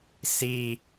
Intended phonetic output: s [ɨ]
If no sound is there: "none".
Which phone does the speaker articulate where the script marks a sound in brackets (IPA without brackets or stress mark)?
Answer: i